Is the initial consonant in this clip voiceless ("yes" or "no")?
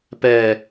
yes